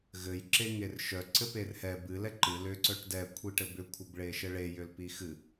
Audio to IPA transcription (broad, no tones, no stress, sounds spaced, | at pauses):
ɣ ɘ j ǁ e ŋ e r ʃ œ ǀ ɘ p e r h ɛ b ɨ l ɛ ǃ ɨ l ʏ ǀ œ ʈ d ɛ kʷʰ i ʈ ɘ b ʏ kʷʰ ɘ b ɭ e ʃ ɘ ɭ e j ʏ l p i x ɨ